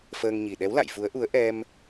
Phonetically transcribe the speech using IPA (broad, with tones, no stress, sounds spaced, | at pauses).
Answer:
f əː˧ ŋ ɲ i˨˩ ɗ ɛ˨˦ w l a̰˧˨ j f u˨˦ ə̯ ʔ u˨˦ ə̯ ʔ ɛ˧ m